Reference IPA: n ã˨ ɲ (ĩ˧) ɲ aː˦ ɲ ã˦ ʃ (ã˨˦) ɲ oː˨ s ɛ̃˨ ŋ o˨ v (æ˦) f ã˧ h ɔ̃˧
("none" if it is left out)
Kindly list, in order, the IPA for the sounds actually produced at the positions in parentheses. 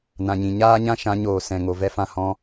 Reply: ĩ˨, ã˨˦, ɛ˦

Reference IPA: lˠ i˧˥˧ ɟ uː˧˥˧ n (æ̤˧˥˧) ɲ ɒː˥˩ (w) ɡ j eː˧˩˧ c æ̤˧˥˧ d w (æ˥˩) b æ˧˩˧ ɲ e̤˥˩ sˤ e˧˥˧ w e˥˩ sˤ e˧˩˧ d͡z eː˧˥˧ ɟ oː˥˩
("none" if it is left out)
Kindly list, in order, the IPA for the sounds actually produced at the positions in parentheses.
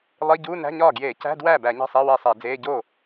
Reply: æ̤˧˥˧, none, æ˥˩

